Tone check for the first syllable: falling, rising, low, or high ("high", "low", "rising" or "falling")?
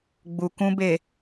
low